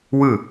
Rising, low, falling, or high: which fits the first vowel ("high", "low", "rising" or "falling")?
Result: falling